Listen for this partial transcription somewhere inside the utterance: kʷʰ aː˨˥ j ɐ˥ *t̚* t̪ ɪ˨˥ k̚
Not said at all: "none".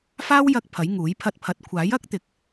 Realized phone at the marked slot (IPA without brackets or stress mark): k̚